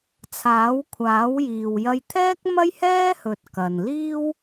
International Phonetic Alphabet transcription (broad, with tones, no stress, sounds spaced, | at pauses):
t͡sʰ aː˨˥ w kʷʰ aː˨˥ w j iː˨ w j ɐ˧ j t̪ʰ ɛː˥ k̚ m ɐ˥ j h ɛː˥ h ɵ˨ t̚ k ɐ˨ n l iː˥ w